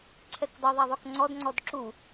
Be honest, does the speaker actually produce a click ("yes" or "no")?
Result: yes